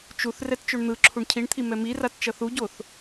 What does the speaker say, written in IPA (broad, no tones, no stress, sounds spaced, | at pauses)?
t͡ʃ u θ r ɛ t t͡ʃ o ɳ n̪ ɯ ǁʰ u ɳ cʰ i ɳ t̪ʰ i m ɛ m i r a t t͡ʃ ʌ θ u ɟ o θ